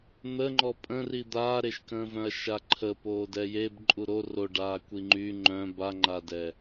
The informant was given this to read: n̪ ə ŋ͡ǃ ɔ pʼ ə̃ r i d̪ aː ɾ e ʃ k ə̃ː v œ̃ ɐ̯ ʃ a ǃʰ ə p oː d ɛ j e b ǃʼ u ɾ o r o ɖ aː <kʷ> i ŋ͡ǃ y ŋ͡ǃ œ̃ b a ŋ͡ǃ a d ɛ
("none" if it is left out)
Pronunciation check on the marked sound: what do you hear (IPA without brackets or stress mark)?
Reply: kʷ